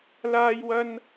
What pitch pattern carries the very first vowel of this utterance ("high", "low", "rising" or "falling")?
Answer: high